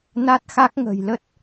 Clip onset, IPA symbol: n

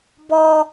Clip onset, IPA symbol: b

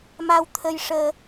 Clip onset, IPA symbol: m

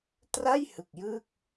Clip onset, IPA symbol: t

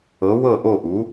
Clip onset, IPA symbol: ɤ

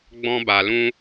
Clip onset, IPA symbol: ɡ͡b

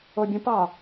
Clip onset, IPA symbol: o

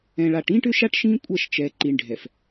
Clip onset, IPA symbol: ɛ̃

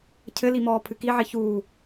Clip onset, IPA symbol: cʰ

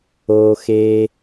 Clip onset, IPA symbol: oː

